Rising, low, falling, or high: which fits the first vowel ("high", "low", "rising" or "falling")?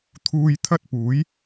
low